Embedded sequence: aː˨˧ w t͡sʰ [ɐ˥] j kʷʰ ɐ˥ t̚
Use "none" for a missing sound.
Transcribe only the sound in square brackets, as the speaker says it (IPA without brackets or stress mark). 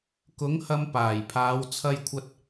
ɐ˥